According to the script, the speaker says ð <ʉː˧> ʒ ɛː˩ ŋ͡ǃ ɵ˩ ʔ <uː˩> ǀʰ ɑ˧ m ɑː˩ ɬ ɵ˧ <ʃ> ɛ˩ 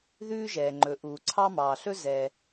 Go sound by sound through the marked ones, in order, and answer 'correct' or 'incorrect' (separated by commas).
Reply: correct, correct, incorrect